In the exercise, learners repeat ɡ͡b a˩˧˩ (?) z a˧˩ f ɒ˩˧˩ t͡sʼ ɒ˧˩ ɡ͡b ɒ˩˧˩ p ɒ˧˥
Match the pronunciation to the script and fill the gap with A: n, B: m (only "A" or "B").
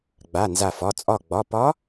A